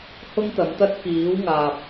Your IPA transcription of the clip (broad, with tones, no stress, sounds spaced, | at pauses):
h ʊ˥ ŋ t̪ ɐ˨˧ m t̪ ɐ˥ t̚ k iː˨˥ w ŋ aː˨ p̚